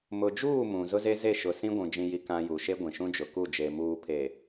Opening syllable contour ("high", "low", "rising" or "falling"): low